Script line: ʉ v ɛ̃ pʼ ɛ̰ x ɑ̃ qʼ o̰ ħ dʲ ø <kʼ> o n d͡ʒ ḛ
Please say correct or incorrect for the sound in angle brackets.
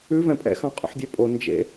incorrect: pʼ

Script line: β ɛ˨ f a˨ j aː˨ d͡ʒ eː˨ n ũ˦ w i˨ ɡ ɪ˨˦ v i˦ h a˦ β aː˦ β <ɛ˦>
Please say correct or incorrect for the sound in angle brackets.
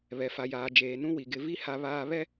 correct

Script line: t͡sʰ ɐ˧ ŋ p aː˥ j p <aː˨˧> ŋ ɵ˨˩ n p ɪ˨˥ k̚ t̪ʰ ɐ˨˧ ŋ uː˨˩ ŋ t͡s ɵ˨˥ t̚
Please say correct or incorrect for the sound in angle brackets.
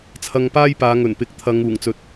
correct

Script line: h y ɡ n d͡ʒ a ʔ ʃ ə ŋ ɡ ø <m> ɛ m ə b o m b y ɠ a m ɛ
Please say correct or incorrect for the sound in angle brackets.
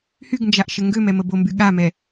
correct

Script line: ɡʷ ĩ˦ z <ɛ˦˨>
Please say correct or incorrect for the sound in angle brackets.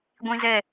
correct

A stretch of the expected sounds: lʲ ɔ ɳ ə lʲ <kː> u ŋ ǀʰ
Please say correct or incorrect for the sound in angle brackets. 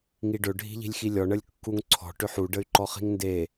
correct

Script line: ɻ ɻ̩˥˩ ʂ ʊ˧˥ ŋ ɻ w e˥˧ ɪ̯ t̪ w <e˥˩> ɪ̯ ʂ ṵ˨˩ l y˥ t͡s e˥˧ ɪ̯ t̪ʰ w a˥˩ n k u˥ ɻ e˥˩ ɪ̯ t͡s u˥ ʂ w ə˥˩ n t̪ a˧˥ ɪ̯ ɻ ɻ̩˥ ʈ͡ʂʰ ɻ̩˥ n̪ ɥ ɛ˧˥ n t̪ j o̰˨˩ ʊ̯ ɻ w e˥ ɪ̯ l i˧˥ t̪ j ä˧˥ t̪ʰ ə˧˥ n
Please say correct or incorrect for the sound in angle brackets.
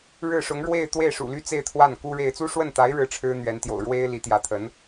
correct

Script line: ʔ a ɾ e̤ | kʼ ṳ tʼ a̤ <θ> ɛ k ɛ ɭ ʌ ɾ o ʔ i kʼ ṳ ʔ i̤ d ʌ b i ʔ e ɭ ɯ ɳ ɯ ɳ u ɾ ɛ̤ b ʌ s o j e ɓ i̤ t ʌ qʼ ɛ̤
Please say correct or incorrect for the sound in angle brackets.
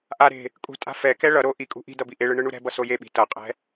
incorrect: f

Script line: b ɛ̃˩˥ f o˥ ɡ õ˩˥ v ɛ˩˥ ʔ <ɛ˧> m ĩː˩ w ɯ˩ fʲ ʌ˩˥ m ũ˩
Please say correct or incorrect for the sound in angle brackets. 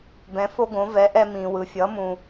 correct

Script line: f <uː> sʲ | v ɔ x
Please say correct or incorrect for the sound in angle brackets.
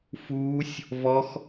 correct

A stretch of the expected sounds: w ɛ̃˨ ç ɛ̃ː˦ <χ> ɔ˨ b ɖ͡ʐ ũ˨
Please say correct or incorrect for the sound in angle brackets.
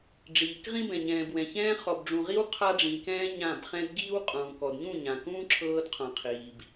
correct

